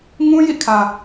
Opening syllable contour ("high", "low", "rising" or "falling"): high